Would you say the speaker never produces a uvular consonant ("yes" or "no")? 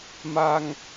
yes